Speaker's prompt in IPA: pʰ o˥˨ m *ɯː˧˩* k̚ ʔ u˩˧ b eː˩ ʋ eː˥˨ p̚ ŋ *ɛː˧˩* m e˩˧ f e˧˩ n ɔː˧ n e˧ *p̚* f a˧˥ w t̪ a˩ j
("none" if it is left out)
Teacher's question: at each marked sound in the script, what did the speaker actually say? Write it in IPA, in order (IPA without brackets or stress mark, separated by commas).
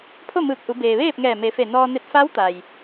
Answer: ɯː˧˩, ɛː˧˩, t̚